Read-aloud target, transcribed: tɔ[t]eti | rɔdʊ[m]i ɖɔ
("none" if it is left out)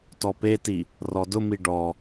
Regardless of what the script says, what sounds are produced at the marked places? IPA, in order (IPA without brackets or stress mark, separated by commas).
p, m